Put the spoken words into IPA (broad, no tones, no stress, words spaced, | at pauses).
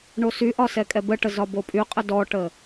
ɳosyʔɒ sɛkʼɛbəʈə zɒbopʼyqʼə dɔʈə